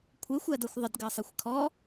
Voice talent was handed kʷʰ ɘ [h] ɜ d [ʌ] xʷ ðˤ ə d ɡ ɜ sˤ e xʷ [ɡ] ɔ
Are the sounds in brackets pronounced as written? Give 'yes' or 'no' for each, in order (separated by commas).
no, yes, no